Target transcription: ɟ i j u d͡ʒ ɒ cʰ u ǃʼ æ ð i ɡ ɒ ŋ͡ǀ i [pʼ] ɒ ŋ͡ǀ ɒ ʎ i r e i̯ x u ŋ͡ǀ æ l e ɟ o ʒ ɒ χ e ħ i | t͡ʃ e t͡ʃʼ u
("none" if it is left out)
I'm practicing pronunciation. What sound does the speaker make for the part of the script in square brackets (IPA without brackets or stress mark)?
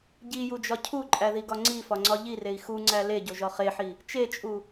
f